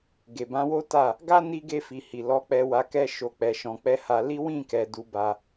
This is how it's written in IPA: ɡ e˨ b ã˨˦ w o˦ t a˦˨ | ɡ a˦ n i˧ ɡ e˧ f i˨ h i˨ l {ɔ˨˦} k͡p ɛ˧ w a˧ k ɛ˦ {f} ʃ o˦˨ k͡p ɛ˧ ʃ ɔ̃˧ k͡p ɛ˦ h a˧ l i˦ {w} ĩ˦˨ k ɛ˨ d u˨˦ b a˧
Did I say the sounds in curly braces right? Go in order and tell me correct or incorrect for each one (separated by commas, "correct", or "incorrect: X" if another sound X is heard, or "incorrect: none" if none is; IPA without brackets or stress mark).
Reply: correct, incorrect: none, correct